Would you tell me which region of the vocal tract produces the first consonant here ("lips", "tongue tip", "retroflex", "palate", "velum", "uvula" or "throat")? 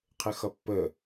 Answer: uvula